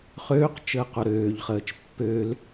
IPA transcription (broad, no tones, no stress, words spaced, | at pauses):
χøːq t͡ʃəːqoɾøːʎχəːt͡ʃ pːøl